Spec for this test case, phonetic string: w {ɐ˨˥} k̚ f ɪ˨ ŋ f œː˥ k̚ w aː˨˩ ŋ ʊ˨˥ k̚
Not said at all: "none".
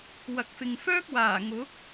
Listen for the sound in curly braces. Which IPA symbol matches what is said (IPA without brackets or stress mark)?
ɐ˨